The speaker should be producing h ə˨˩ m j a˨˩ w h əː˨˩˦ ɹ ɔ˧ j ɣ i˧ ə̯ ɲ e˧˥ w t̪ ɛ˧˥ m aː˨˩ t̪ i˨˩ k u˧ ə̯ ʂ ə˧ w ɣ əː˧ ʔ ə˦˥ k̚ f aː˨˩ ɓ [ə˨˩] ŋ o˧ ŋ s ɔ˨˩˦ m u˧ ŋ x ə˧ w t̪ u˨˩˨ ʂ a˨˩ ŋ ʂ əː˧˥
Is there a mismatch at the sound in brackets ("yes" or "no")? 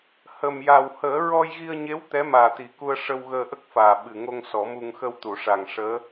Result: yes